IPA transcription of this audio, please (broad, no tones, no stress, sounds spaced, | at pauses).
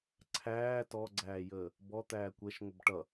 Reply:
ǀʰ æː t ɔ ɡ͡ǀ æː j əː | b ɔ t̪ æː kʷ ɛ ʃ ŋʷ ə b ʈ ʌ